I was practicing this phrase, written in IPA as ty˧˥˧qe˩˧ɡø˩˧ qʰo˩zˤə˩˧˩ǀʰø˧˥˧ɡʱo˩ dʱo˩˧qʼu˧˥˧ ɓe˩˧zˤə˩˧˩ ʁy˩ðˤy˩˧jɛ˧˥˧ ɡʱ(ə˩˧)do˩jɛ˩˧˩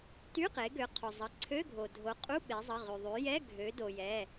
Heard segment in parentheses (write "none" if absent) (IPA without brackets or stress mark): ø˩˧